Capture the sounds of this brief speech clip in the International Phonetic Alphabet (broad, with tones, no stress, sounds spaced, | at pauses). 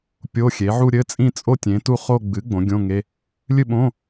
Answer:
pʲ o˧˥˧ xʲ e˩˥ ʕ u˥˧ ɾʲ ɘ˧˥˧ t͡sʼ ĩ˥˧ t͡sʼ o˥˧ tʲ ẽ˩˥ t u˥˧ χ o˥˧ ɡ͡b ɨ˩˥ ɡ͡b õ˩˥ ɡʲ õ˧˥˧ ŋ e˧˥˧ | lʲ ɨ˥˧ ɓ õ˧˥˧